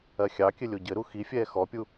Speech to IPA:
ɜxʲɑkʲɘ lʲoɟɘɾu xifʲɛː xɔpʲu

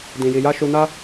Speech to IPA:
dĩ˧ji˧ja˦ ʃu˧na˦

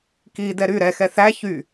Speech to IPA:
kidɛ ɾy ɾɛxɛ θæ çy

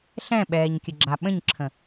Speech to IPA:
ɬɛ̃ɓɛːɲkʲəɡ͡ǁa ɓə̃ɲǁʰə̃

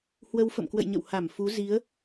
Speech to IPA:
hwə˧wfə̰˧˨mkwə̰˧˨jɲə̰˧˨w ha˧˩m fu˨˦ zi˨˦ə̯

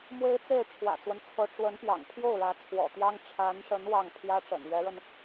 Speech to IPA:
mwe˥ɪ̯t͡se˥˩ɪ̯ ʈ͡ʂʰwä̰˨˩t͡swə˦nt͡sʰɤ˧˥ ʈ͡ʂwə˧˥npjɑ̰˨˩ŋ pʰjo˥˩ʊ̯ɻä˧˥ t͡sʰwɔ̰˨˩t̪jɑ˥ŋ ʈ͡ʂʰa˧˥nʂə˧˥n wɑ˥˩ŋ pʰjä˥ʈ͡ʂə̰˨˩nɥɛ˧˥ɻə˧n

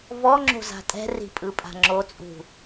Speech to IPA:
vɔŋ͡ǁo̤za̤ tʼɛ̤ri̤pʼɯpʼa̤ ŋ͡ǁot͡sʼṳ

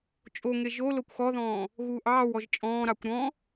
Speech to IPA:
t͡ʃʼoŋe ʒo lokʷxɔðɔ̃ː | ɣuːʔɑːwɔʒ t͡ʃʼɔ̃ːɾɑkʷ ɾɔ̃

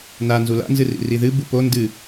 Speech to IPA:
na nzula̰nzɨrḭ riðɨ bupo ndɨ

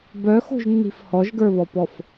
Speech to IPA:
bœxo̤ʒnːi̤f hɔʒɡə˞βɔpɔf

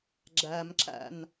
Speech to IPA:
ɡ͡ǁæmǁæ̰n

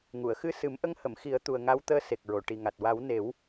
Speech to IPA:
ŋu˨˩˨ə̯xɨ˧ sɨ˨˩˦mʔə˧˥ŋhə˨˩˨m xi˨˩˦ə̯ t̪u˨˩ə̯ ŋa˧˥wt̪əː˧˥ se˨˩k̚ɹo˨˩˨ʈi˨˩ŋa˨˩t̚ wa˨˩˦wne˨˩˦w

